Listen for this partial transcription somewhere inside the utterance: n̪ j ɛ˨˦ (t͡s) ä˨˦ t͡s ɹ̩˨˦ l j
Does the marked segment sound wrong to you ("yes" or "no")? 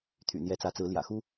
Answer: no